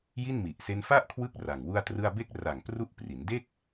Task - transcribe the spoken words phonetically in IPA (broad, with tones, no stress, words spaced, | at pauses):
ji˥˩nmi˨˩ʔse˦˥n fa˥˩ʔkʰwɯ˦˥k̚ ra˨˩ŋwu˥˩a̯trɯ˥˩a̯ be˦˥k̚ra˨˩ŋ pru˦˥ʔ pri˩˦nde˥˩k̚